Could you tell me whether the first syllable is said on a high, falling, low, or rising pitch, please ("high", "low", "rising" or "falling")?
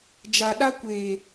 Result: low